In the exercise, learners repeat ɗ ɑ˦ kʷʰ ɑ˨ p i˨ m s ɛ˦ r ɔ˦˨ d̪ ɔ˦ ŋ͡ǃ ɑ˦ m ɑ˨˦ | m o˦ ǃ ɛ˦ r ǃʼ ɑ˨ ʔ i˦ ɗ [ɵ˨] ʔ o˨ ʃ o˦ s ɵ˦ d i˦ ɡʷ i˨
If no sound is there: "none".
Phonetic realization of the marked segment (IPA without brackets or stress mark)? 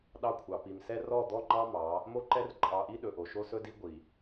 ɵ˨